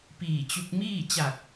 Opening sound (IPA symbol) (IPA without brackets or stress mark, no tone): p